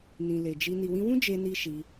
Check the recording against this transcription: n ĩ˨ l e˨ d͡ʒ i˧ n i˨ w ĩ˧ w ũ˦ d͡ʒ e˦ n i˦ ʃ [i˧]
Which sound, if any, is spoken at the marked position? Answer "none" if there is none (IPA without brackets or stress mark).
i˧